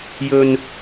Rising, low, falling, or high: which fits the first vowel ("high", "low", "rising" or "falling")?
low